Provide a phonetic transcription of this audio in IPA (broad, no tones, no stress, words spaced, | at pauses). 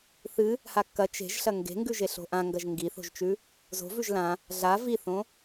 θɨ | hakːɐ t͡ʃe̤ʒ ɬɐŋɡe̤ŋɡʉ ʒeɬo̤ʔãŋɡɐʒ ŋɡiθo̤ʒt͡ʃʉ | zo̤vʉʒ lã | ɮa viθõ